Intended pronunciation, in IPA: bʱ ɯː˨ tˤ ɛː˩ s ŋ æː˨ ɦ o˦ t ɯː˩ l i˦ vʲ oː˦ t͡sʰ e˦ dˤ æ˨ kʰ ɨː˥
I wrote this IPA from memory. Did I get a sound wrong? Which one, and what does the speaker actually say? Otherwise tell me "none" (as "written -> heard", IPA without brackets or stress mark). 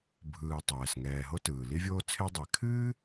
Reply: æː˨ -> ɛː˨